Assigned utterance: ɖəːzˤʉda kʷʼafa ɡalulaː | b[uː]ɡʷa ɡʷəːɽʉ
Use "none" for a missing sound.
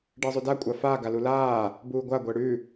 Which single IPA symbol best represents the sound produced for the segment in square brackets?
uː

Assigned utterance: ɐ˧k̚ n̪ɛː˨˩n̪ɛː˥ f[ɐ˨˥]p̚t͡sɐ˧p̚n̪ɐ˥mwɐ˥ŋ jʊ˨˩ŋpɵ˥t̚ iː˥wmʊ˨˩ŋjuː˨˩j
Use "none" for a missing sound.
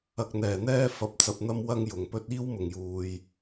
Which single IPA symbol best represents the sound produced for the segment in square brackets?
ɐ˧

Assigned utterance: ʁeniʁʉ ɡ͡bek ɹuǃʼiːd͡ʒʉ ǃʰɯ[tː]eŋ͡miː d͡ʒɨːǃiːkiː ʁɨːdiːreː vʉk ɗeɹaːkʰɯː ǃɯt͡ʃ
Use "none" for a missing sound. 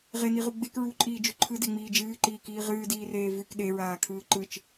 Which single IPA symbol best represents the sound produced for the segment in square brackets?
d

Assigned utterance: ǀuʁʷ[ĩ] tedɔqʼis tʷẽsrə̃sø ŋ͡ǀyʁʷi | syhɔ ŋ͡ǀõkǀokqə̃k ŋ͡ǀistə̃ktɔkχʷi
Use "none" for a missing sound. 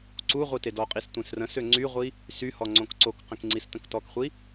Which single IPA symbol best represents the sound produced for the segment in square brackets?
i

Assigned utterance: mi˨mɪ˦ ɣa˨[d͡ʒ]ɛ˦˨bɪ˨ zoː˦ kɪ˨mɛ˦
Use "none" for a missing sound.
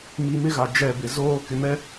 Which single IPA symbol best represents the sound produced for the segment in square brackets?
d͡ʒ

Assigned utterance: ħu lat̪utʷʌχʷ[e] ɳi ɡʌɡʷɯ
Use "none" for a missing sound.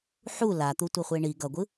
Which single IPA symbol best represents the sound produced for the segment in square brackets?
e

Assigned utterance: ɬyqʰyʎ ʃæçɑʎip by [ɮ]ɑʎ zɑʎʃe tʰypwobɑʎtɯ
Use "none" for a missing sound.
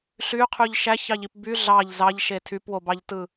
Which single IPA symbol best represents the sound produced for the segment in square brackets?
ɮ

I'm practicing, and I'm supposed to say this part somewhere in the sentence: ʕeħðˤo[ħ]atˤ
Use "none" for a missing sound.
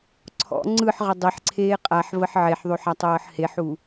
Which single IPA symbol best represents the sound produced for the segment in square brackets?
ħ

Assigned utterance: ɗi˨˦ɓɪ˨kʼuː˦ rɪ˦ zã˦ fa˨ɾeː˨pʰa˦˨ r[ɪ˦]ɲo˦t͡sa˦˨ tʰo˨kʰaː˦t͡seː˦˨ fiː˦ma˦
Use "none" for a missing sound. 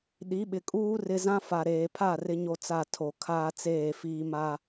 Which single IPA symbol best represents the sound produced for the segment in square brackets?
ɪ˦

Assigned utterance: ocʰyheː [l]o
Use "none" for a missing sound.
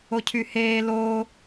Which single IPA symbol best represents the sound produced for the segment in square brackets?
l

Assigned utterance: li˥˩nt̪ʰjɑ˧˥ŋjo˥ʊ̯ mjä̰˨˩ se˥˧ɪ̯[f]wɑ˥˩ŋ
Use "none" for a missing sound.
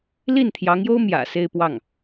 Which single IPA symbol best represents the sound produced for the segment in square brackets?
p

